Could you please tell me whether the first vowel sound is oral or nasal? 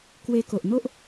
oral